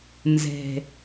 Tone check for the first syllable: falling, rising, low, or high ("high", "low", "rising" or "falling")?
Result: low